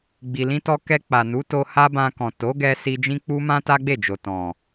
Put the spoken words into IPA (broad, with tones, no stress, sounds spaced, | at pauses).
ɡ͡b i˨ l ĩ˧ t ɔ˧ k ɛ˧ k͡p a˨ n u˨˦ t o˧ h a˦ b ã˧ k ɔ̃˨ t o˨˦ ɡ ɛ˧ s i˧ d͡ʒ ĩ˦ k͡p u˦ m ã˦ t a˦ ɡ͡b e˦˨ d͡ʒ o˨ t ɔ̃˨